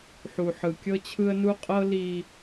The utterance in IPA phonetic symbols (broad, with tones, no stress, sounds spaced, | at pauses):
ħ u˨ ħ ɯ˨ kʲ ɤ˦ t͡ɕʰ ɯ˦ ə̯ n u˦ qʼ ɤ˦ l i˦